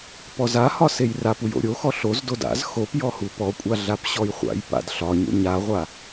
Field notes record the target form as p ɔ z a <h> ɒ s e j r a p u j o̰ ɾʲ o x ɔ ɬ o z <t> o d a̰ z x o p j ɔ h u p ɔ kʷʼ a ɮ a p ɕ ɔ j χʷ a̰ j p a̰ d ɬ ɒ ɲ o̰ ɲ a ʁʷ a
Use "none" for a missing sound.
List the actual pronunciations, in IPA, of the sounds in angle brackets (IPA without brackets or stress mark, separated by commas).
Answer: h, d